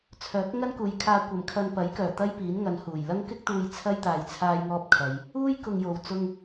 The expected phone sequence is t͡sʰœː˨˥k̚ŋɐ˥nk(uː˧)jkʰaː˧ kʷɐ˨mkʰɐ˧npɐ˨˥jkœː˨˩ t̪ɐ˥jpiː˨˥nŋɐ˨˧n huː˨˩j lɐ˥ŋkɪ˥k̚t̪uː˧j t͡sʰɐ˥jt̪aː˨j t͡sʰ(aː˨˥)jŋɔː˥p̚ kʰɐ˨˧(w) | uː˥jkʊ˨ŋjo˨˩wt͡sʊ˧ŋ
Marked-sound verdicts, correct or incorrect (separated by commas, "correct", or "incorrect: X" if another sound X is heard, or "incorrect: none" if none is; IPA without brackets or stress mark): incorrect: uː˨, incorrect: aː˥, incorrect: j